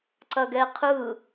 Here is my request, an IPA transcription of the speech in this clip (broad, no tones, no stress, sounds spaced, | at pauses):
ǀ ɐ ɡ ɛ qʰ ɯ